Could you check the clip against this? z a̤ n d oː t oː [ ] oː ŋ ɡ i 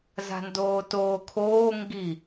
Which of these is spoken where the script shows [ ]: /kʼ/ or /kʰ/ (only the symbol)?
kʰ